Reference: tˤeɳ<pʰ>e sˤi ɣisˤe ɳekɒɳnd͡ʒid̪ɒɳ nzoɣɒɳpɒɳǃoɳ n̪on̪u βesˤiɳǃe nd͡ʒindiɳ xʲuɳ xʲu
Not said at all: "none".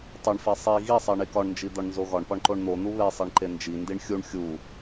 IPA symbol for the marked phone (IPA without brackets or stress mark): f